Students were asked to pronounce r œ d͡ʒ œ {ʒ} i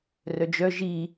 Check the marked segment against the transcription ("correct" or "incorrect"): correct